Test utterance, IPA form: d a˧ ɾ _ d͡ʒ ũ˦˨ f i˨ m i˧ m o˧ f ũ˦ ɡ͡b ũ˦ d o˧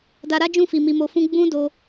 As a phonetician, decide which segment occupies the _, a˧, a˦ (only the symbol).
a˦